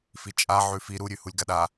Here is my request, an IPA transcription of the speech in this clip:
f i t͡ʃʼ a ʕ ʉ f i ɾ u ɾʲ ʉ h u lʲ ɡ a ɗ a

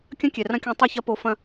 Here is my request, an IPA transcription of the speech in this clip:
kʲ ɐ̃˦ kʲ ɛ˨ r ɐ̃˦ kʲ ɔ̃˧ tˤ ɐ˦˨ ç ɐ˧ p o˨˦ f ɐ̃˧

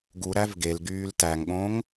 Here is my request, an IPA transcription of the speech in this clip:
ɡ u ɾ æ v ɡ e l ɡ yː l t æ ŋ ɠ õ ŋ

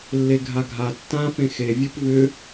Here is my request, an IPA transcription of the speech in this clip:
lː e ɡʱ a ɡʱ a tː ã f ẽ x e vʲ e p v ʏ

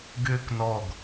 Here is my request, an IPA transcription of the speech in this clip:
ɡ ʏː k n ɔ ɡ

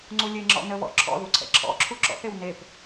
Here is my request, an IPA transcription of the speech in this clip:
ŋ͡ǀ u lʲ e ŋ͡ǁ ɔ̰ n ə β ɔ̰ ǁʰ ɔ̰ ð u ǀʰ ɛ̰ ǁʰ ɔ̰ ǁʰ u ǁ ɔ̰ θ e w n e p

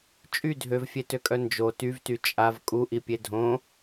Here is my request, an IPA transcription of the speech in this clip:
t͡ʃʼ y dʱ ø v fʲ e t ø kʼ œ n d͡ʒ o t y v t y t͡ʃʼ a v kʼ u ʔ i pʲ e dʱ õ

